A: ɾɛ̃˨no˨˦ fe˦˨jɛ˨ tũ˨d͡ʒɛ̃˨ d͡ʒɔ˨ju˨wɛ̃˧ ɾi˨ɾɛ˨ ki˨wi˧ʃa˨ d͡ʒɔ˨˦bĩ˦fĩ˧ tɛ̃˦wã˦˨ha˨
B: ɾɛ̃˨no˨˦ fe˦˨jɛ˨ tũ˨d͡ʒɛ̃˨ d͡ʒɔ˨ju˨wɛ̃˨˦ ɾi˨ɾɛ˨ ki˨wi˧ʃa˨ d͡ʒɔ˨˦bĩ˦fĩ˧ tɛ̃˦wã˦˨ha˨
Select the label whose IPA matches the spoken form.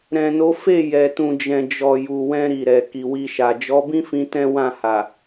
A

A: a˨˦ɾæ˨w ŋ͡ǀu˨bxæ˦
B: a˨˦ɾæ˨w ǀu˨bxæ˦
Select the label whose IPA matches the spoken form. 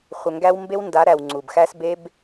A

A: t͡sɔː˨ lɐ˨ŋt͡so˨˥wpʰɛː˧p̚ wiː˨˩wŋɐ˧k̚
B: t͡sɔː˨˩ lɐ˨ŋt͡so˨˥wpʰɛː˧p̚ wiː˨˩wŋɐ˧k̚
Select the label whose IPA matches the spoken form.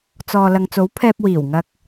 A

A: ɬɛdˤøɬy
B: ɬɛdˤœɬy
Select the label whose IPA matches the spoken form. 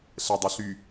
B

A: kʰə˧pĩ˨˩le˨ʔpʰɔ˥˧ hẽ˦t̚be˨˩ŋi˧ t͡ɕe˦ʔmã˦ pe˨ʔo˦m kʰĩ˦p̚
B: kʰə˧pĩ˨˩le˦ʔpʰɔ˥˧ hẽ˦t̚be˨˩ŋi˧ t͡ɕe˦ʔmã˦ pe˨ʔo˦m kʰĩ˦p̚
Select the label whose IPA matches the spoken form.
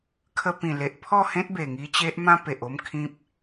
A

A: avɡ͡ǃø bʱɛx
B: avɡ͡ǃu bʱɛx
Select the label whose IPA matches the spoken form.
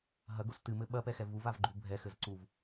B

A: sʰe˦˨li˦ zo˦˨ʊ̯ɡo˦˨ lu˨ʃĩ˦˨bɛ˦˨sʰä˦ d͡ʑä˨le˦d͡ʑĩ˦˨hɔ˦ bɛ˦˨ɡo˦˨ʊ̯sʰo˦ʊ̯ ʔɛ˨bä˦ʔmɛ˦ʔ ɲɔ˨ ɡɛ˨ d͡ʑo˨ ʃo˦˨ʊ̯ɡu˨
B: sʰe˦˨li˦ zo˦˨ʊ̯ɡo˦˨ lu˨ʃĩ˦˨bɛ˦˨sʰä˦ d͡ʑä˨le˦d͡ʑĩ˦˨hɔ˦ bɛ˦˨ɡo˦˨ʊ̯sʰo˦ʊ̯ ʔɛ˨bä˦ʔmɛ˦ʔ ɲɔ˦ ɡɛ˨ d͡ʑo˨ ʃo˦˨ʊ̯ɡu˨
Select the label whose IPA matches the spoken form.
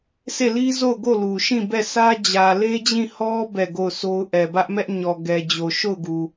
A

